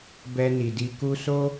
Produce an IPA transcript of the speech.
bɛ˧ ni˨di˧ku˦ so˦

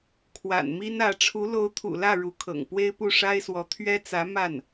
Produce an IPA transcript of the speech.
kʰwa̰˨˩nmi˥nä˧˥ ʈ͡ʂʰu˧˥lo˧˥ʊ̯t̪ʰṵ˨˩lä˥˩ ɻu˧˥kʰɤ̰˨˩ŋ pwe˥ɪ̯pu˥˩ʂa˥ɪ̯swɔ˧˥ t̪ʰɥɛ˥t͡sä˧˥ ma˥˩n

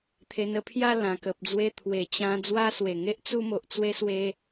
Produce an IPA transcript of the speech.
t̪ʰe˧nə˧pʰja˥˧ lã˨˩kə˨p̚d͡zwe˧ t̪ʰwe˨˩t͡ɕã˧ d͡zwa˦swe˨˩ŋe˦ʔ t͡su˦mo˨ʔt͡swe˦ swe˦

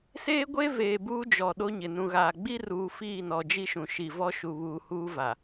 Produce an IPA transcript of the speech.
seː˦ɡʷe˦ veː˨buː˦d͡ʒɔ˨ ɗo˦ɲɪ˨ nũ˨ɣaː˨ ɡ͡bi˦ruː˨ fiː˦˨nɔ˨d͡ʒi˦ʃũ˨ ʃi˨vɔ˦ʃu˨βuː˨ huː˦va˨

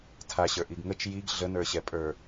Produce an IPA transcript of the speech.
tʰaɕə˞ ʔiɡŋət͡ʃ jiɡ ɮənə˞ɕɛ pʼə˞

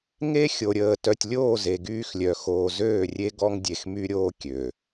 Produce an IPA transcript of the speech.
ŋe˦ xʲo˨ɾʲəː˨ tœ˨tʲlʲoː˦˨ ze˨ɡyː˦xlʲœ˨ xoː˨zøː˦˨rʲe˦ ɡɔ˦ŋdʲe˨xmy˦ɾʲoː˦ kʲø˨

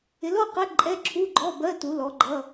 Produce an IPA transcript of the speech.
ɪ˨˥lɔ˧˥˧qɛ˧˥˧ ǃʼɛ˧˥˧ǁʰu˧˥˧ɡ͡ǃɔ˧˥˧ bɜ˧˥˧ tu˨˥lɔ˨˥ɡ͡ǃʌ˧˥˧

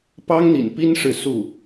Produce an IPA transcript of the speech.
pɑ˥ŋn̪ḭ˨˩npi˥nʂɻ̩˨ su˥˩

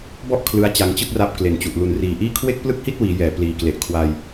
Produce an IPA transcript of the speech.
bɔ˥˩ʔ kʰlɯ˦˥a̯t͡ɕa˧ŋt͡ɕɯ˥˩k̚ra˦˥p̚ kle˨˩nt͡ɕu˨˩ʔ lu˨˩nriː˨˩ʔiː˥˩ kʰwe˥˩k̚plɯ˥˩k̚hi˥˩t̚wiː˩˦ jɛː˩˦pliː˨˩kle˨˩ʔ kʰwa˧j

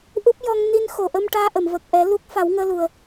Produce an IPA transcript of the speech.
ʔu˦˥p̚ jɔ˧ŋ ni˧nxo˨˩ʔə˧m ʈaː˧ʔə˨˩˨mvə˨˩k̚ʔɛ˨˩˦ lu˦˥k̚ fa˨˩˦wŋəː˧lu˨˩ə̯

